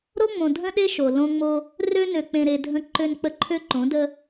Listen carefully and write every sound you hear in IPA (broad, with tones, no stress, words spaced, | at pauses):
ɾo˦ŋ͡mõ˨ dʱə̃˦ɗe˦ ʃo˨lõ˦ŋ͡mo˦ | rø˦nø˨k͡pẽ˨ɾe˨ dʱə̃˨ ǃø˨nk͡pə˨ ǃʰø˦ǃõ˨˦də˦